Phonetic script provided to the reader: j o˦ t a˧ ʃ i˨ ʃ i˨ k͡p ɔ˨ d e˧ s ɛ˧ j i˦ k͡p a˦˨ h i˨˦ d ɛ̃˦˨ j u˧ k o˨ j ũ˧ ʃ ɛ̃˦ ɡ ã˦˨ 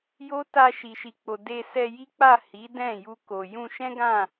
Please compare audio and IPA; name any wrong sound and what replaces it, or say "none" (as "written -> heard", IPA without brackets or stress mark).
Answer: ɔ˨ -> o˨